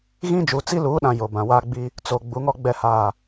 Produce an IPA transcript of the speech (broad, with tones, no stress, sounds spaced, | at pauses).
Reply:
ɣ ĩ˦ d͡ʒ u˨ t͡s i˦ l uː˨˦ ɗ ã˨ j o˨ b ã˨ w aː˦ ɡ͡b i˦ | t͡s o˨ ɡ͡b u˨˦ ŋ ɔ˦ ɡ͡b ɛ˨ h aː˨